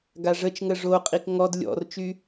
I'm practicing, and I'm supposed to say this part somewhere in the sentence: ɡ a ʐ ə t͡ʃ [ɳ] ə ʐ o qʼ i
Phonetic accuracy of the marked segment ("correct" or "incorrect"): incorrect